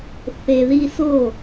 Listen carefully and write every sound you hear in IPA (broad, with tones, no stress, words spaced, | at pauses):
θe˨ ði˧so˦˨